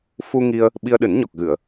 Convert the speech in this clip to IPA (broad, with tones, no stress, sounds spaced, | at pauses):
f u˧ ŋ i˧ ə̯ | ɓ i˧ ə̯ ɗ ɨ˨˩˦ n ɲ ɔ˨˩ k̚ ɣ ɨ˨˩˨ ə̯